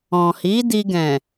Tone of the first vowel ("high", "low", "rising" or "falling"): low